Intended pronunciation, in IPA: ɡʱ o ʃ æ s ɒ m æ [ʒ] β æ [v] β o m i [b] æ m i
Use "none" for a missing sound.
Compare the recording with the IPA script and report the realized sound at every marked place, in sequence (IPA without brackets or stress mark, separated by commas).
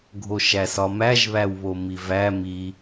ʒ, w, v